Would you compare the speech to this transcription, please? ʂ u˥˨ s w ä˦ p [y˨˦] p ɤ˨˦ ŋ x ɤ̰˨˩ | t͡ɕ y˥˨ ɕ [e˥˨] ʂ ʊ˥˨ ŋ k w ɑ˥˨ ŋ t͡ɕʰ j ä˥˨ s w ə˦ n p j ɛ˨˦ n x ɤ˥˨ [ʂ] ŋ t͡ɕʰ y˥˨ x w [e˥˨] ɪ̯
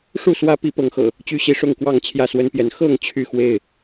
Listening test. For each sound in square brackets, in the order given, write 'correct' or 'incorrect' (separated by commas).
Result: incorrect, incorrect, incorrect, correct